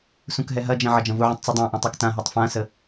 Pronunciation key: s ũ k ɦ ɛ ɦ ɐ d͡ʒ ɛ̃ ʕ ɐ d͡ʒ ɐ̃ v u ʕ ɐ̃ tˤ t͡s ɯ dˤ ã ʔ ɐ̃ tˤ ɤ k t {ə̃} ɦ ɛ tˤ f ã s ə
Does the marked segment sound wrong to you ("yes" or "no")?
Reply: yes